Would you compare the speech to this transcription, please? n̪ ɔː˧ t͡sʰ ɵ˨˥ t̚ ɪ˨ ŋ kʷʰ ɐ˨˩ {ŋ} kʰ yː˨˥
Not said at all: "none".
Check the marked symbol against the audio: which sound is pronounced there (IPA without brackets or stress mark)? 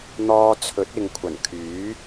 n